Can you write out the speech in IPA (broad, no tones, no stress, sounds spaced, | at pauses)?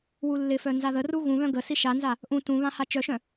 w u lː ɪ f œ n z a ð ə r u ɣ ũ β œ̃ ɡ ə s i ʃ a n z a | ʔ ũ t ũ β ã h a t͡ʃ œ ʃ œ̃